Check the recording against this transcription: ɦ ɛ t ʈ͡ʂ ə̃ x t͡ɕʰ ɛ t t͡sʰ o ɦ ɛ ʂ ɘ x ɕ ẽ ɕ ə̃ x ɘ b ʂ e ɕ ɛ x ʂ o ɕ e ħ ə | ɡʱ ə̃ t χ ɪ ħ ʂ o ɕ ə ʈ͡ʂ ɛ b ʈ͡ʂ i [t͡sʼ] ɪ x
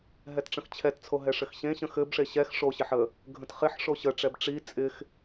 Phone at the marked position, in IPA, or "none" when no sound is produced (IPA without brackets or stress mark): t͡sʼ